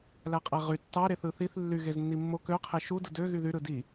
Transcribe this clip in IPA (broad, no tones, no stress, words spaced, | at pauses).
læqʼæʁy tːɑ ɾeθɯθiθ lːy ɣeznːimːo kø qʰeʃu dɯdø ɣyðy ɾɯdi